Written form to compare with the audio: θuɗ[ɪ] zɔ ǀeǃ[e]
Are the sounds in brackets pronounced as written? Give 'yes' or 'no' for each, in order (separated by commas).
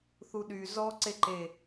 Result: no, yes